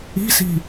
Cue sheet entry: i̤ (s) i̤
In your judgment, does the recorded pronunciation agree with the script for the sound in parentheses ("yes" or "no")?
yes